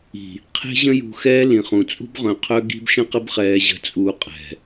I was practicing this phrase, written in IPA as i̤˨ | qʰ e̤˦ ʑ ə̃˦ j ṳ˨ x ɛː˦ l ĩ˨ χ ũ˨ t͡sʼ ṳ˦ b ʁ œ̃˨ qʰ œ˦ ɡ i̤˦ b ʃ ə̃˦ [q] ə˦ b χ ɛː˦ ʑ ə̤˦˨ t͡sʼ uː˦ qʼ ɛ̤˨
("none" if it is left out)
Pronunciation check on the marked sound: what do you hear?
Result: q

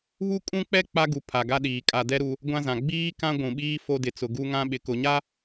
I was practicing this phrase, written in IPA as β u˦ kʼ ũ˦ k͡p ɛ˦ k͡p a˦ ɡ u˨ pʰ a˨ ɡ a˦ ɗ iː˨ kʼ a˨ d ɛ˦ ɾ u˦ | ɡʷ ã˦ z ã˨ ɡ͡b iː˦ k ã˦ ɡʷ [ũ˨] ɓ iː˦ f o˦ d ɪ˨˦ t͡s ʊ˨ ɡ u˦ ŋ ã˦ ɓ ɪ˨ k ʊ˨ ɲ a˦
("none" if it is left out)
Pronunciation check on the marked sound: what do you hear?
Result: ũ˨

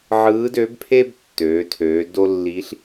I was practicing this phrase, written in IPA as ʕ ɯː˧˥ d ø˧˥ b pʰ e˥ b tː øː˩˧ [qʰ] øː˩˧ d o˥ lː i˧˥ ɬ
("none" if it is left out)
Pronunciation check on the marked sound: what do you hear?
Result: tʰ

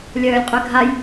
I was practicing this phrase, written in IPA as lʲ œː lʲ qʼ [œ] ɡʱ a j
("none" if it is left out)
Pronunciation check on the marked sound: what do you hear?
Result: œ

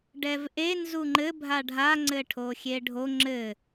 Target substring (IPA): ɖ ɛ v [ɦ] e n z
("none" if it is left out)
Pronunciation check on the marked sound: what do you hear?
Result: ʔ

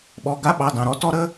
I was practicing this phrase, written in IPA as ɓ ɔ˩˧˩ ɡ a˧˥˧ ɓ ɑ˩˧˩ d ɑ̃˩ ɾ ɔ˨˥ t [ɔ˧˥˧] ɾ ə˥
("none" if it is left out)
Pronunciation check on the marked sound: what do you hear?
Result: ɔ˧˥˧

